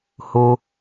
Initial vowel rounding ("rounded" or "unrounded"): rounded